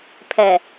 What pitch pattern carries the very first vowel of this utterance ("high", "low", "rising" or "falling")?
low